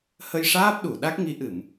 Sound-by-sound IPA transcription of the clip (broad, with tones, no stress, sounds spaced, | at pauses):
h ə˧ j ʂ aː˦˥ p̚ ɗ u˨˩˨ ɗ a˦˥ k̚ ŋ i˧˥ ʔ ɨ˨˩˨ m